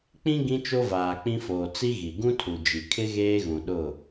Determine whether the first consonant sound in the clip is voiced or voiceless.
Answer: voiceless